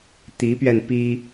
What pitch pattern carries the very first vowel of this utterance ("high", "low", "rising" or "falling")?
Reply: rising